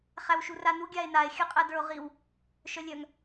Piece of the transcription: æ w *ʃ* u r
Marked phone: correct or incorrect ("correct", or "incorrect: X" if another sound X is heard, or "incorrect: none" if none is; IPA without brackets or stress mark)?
correct